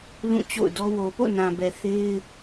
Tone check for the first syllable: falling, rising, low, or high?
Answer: falling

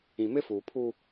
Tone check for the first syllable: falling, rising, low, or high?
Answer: low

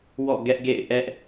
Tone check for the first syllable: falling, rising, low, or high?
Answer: falling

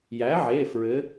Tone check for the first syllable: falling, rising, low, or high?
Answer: rising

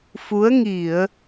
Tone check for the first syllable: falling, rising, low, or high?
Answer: rising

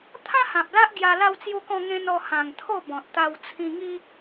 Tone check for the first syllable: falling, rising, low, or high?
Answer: high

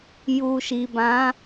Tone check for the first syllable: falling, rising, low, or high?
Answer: low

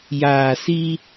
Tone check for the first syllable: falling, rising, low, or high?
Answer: low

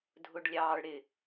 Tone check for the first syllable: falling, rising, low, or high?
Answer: high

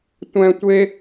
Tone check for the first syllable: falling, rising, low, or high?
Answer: high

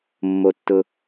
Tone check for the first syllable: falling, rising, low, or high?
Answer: low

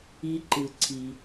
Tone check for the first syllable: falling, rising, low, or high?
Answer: high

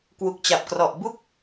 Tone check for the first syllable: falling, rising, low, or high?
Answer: low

